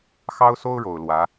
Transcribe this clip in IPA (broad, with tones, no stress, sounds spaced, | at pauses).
x ɑ˥ ʊ̯ s o˥ ʊ̯ ɻ o˨˩ ʊ̯ l w ä˧˥